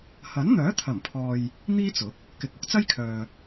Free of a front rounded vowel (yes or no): no